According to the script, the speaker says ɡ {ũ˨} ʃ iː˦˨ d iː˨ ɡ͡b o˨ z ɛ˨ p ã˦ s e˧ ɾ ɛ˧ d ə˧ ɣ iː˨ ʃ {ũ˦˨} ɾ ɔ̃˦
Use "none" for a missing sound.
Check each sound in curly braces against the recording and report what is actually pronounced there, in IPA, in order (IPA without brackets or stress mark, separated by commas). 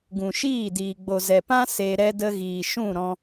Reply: ũ˨, ũ˦˨